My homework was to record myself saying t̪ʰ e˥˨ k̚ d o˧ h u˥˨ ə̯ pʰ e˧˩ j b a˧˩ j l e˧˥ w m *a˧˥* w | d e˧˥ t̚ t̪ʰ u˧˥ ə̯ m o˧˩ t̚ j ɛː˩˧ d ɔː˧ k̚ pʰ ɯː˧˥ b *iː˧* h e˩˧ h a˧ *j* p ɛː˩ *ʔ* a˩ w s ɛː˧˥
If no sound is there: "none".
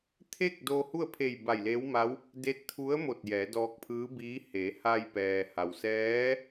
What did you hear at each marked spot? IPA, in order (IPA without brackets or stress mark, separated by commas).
a˧˥, iː˧˥, j, h